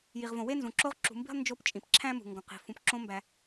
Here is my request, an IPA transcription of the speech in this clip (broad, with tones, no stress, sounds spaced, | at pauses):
j i˩ ʁ v õ˩ w e˥ n z ũ˩ ǁ o˥ ʁ ǁ ṳ˨ m b i̤˥ lˠ n d͡ʒ o˦ p t͡ʃʼ ĩ˩ p ǁʰ æ̃˥ m ṳ˩ ŋ ɡ õ˩ q i̤˩ f ũ˨ p ǁ õ˦ m b æ˨